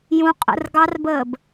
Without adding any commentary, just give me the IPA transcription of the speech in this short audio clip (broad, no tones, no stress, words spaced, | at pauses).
jũ qʼə̰r ɡɑrbəːb